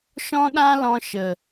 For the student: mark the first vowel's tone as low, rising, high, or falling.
high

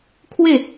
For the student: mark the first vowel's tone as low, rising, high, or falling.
falling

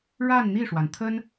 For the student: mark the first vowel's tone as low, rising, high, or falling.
falling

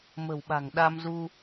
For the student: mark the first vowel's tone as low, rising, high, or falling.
low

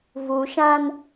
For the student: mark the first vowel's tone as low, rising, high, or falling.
low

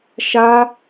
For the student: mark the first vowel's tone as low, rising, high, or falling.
high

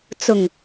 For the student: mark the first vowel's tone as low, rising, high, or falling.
low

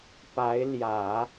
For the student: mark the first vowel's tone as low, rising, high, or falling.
rising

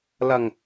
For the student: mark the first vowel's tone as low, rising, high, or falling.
low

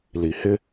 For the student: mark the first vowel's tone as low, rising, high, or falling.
low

